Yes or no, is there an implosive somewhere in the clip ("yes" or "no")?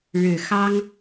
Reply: no